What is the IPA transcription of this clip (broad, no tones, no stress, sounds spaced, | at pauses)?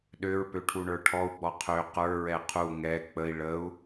ɗ ø ɹ p ø ʈʰ u ɳ ə˞ ʈʰ ɔ u̯ ɡ͡b ɔ qʰ ø q ə˞ ɹ ɛ qʰ u ŋ ɛ k͡p ə i̯ ɭ ə u̯